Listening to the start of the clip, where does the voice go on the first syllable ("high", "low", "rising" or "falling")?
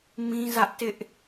high